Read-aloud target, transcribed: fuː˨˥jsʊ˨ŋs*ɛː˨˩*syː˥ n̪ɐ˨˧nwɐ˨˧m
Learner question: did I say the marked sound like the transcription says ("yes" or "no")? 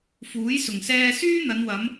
no